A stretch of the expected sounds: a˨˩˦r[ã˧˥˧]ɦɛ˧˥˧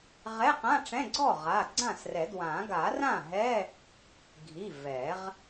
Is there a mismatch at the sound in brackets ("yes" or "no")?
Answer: yes